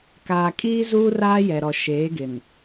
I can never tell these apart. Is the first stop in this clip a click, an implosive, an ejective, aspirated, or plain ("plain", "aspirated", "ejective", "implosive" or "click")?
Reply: plain